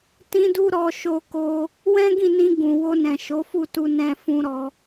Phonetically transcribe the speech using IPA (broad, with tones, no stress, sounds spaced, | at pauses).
t ĩ˦ d u˦ ɾ ɔ˧ ʃ o˧ k o˧ | w ɛ̃˦ ɡ ĩ˦˨ n ĩ˧ ɡ ũ˨ w o˧ n ɛ̃˨ ʃ o˨˦ f u˦˨ t u˧ n ɛ̃˧ f ũ˧ ɾ ɔ˧